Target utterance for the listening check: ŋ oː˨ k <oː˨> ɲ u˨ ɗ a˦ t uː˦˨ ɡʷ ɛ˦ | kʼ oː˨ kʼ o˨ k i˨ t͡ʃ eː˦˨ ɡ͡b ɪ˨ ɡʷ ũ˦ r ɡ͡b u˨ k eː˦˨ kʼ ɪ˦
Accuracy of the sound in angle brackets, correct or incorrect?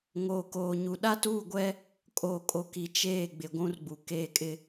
correct